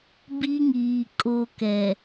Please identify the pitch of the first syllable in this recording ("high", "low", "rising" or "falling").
high